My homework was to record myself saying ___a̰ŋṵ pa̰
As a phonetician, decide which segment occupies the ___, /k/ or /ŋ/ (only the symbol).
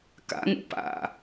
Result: k